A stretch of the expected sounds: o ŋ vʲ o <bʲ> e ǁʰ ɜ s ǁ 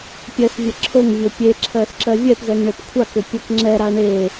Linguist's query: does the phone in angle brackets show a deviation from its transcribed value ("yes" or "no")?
yes